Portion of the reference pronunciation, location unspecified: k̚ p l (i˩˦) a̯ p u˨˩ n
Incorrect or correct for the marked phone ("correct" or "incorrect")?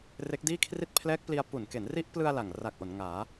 incorrect